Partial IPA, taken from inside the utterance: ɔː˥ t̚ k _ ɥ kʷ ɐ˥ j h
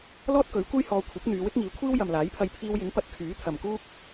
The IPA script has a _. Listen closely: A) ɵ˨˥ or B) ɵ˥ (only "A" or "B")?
A